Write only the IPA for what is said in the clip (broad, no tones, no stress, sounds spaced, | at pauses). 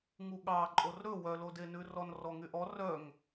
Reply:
ŋ u ɠ ɑ ǃʼ o r ɾ ɵ w œ l o d e n ʉ r ɔ n r ɔ ŋ y ʔ ɔ r œ ŋ